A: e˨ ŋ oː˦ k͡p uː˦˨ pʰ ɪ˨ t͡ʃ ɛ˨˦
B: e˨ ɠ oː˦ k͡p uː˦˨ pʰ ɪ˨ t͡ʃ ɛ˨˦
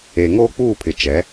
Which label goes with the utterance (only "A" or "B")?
A